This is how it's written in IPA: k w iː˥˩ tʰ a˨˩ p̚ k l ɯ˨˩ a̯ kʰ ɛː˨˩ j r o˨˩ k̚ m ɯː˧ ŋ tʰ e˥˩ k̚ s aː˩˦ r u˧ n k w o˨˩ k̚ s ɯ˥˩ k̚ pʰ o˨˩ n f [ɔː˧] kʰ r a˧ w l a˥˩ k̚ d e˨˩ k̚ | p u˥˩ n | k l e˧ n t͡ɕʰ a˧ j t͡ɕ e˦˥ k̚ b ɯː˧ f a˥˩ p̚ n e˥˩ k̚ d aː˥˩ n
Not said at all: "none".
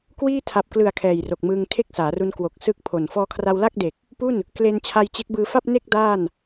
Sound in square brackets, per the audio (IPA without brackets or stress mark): ɔː˧